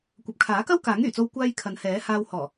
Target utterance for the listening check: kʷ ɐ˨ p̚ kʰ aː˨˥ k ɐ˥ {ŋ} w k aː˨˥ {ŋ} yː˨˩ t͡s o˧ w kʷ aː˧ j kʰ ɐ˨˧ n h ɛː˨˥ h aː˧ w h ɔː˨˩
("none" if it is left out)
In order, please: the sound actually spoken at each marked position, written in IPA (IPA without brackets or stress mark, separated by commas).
none, ŋ